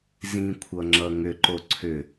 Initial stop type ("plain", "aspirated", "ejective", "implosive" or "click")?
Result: aspirated